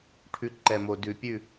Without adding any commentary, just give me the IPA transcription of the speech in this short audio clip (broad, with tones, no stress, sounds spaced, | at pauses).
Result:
ʈʰ ʉ˨ ǃ ɛ˨ m o˨ d ʉ˨ pʲ ʉ˦˨